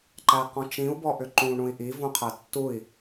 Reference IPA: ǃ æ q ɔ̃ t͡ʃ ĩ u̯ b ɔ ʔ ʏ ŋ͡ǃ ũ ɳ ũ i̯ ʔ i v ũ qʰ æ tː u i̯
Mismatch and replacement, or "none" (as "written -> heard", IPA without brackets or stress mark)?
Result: ŋ͡ǃ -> ǃ